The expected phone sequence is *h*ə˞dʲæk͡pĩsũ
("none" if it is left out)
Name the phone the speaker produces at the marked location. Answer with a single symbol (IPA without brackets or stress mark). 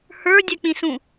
h